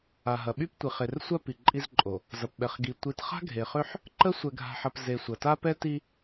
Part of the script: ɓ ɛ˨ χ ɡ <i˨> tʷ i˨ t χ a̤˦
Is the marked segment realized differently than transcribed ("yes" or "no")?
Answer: no